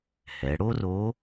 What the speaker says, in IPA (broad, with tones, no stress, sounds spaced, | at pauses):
h ɛ˩˧ ɽ o˥ r o˧˥